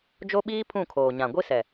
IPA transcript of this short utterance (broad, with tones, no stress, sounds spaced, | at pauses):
d͡ʒ o˦ ɓ iː˦ pʰ ũ˦˨ kʰ oː˨ ɲ ã˨ ɡʷ i˦ s ɛ˨